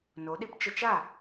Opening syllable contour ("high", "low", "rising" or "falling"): rising